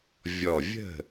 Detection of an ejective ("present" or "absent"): absent